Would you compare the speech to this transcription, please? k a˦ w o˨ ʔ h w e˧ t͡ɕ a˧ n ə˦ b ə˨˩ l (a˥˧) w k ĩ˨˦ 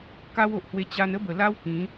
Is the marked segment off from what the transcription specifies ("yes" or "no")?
yes